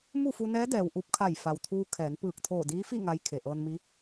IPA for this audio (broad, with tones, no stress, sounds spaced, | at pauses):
m u˥˨ f u˧ n ɛː˧˥ d ɛː˩ w ʔ u˧ p̚ kʰ a˧˩ j f a˩ w t̪ʰ uː˧ kʰ ɛː˩˧ n p ɯː˧˩ k̚ t̪ʰ oː˧˩ d iː˧˥ f i˥˨ ŋ a˧˥ j kʰ e˩ ʔ ɤː˧ n m i˧˥